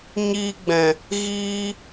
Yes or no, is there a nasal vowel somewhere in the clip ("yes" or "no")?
yes